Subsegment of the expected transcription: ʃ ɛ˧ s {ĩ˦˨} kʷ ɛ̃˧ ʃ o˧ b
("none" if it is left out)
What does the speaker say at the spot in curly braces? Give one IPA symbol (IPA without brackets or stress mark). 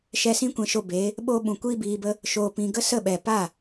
ĩ˦